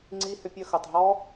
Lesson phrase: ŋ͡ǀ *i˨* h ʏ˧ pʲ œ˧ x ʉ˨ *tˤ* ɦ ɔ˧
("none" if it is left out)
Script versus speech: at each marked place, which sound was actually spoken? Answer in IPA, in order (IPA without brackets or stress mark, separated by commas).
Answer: i˧, tˤ